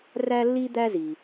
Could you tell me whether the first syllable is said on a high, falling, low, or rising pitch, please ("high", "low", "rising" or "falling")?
high